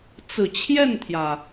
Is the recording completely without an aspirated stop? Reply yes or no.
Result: no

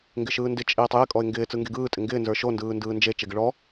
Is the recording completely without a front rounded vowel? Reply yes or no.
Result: yes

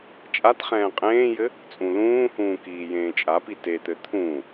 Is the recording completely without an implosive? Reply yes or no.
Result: yes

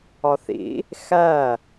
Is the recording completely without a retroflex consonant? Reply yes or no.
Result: yes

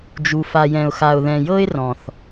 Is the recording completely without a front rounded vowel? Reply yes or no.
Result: yes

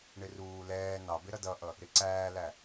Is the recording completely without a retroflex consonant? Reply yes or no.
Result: no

